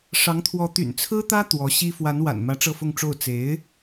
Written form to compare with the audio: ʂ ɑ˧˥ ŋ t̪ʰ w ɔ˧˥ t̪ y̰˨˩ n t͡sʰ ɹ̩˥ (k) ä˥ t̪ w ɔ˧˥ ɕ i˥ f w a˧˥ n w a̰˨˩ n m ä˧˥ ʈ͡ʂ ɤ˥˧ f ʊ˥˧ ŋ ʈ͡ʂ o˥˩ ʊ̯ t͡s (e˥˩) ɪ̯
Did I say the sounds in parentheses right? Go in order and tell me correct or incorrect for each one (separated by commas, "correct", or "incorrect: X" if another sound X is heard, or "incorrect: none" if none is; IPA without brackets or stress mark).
incorrect: t̪, incorrect: e˧˥